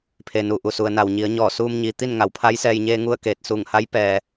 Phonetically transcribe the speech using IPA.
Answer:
pʰ e˩ n u˩ ʔ u˩ s u˩ ə̯ n a˩ w ɲ i˩˧ ə̯ ɲ ɔː˧˩ s uː˧ m ɲ i˩ t̪ i˥˨ n ŋ a˩˧ w pʰ a˧˥ j s ɛː˧ j ɲ eː˧ ŋ u˥˨ ə̯ k eː˧˩ t̚ s uː˧˩ ŋ h a˧˥ j p ɛː˩

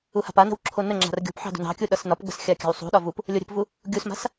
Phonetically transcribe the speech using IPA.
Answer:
u h a̤ p a n ə̤ w ǁʰ o n ə ŋ͡ǁ a̤ r ɡʲ o̤ p ħ ɑ̤ d ṳ n ɑ̤ kʲ u ɗ ʌ s n ɒ p ɡ͡b ə̤ s xʲ a kʲ a̤ w sˤ ṳ ɗ ɒ v u p | lʲ o ɾʲ ə̤ p v u | ɡʲ u s m a̤ s

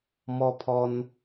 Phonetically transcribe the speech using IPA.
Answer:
m ɔ˦ pʰ ɔ˦ n

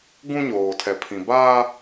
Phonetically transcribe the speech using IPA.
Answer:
ɡ ũ˦ ɲ oː˨ tʰ ɛ˨ pʰ ĩ˨ b aː˦

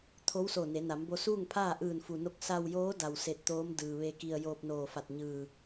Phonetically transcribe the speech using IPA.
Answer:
t̪ʰ o˧˥ w s o˧˩ n e˩˧ n a˩˧ m b o˧ s uː˥˨ ŋ pʰ aː˥˨ ʔ ɯː˧˩ n f u˩ n o˧ k̚ s a˧ w j oː˧˥ d a˧˩ w s e˧˩ t̚ t̪ oː˧˥ m d ɯː˩ ʋ e˧ k i˧ ə̯ j oː˧ p̚ n oː˧˩ f a˧˩ t̚ ɲ ɯː˧˩

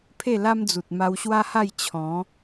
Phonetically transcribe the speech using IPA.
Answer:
pʰ e˥˧ l a˦ m d͡z u˨ t̚ m a˧ w ɕ w a˦ h a˥˧ j t͡ɕʰ ɔ̃˨˦

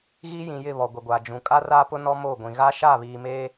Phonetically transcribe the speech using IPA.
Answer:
ɣ i˦ j ĩ˨ j ɪ˦˨ β ɔ˨ ɡʷ e˨ ɡʷ aː˨ d͡ʒ ũ˨ kʼ a˦ r aː˦ p ʊ˦ n ɔ˦ m oː˦˨ ɡʷ ĩ˨ ɣ a˦ ʃ aː˦˨ β iː˨ m eː˦

